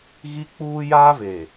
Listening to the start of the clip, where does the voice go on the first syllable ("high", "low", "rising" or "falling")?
high